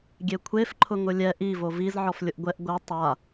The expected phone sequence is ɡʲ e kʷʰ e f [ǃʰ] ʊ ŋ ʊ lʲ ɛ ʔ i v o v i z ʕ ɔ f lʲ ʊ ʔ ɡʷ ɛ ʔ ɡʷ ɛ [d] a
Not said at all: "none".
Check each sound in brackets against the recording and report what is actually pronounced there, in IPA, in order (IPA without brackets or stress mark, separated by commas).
ǃʰ, tˤ